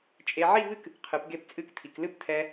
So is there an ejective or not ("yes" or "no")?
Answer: yes